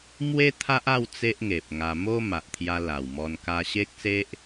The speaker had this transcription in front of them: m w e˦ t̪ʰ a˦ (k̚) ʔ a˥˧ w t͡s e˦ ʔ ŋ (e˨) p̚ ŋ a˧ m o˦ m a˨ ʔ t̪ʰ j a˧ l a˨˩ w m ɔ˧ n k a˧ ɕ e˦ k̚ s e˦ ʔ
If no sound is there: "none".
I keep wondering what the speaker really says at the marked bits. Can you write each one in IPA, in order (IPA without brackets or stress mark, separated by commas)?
none, e˨